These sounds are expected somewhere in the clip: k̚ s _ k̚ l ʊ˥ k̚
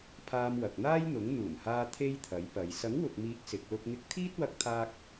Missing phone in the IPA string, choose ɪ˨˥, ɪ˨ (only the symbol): ɪ˨˥